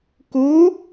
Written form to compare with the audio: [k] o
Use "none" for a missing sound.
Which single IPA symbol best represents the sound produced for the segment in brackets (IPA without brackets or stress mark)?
k